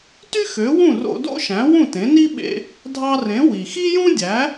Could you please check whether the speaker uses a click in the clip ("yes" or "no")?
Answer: no